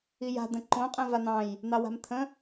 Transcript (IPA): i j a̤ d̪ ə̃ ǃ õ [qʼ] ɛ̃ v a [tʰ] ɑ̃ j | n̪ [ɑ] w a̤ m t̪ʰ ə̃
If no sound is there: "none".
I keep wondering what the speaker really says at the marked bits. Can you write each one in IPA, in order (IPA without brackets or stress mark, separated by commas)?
qʼ, n̪, ɑ